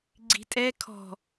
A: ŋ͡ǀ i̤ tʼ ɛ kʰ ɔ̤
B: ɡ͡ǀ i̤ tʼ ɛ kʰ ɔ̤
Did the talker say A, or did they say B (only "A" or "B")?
B